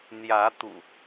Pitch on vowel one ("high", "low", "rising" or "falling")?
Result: rising